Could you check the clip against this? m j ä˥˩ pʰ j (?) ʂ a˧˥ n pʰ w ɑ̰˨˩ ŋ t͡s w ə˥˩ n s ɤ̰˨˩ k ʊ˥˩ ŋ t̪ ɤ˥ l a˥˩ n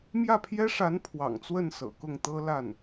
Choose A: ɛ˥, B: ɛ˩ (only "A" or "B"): A